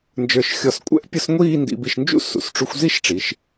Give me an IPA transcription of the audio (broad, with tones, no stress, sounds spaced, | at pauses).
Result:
n d͡ʒ ə˞˧˩ ʃ xʲ ɔ˧˩ s kʷʼ ɛ̰˥ ʔ pʲ ʊ˥ s ŋʷ iː˥˧ n d ḭ˧ b i˧ ʃ n d͡ʒ ṵ˥ s ṵ˩˧ s ʈ͡ʂ u˧ xʷ z i˥ ʃ ʈ͡ʂ i˩˧ ʃ